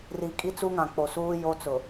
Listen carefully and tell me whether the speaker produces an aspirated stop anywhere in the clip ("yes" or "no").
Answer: no